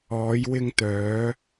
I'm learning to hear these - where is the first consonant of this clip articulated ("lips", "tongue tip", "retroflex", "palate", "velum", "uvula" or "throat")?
palate